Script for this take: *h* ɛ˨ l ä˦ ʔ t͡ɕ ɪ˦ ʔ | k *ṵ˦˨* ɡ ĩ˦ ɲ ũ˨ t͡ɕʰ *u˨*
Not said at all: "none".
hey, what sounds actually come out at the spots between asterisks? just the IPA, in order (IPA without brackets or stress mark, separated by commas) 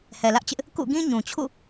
h, ṵ˦˨, ṵ˦˨